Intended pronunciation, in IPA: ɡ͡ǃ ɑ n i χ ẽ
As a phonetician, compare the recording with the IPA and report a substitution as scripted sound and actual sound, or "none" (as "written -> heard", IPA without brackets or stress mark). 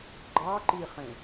n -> ǃ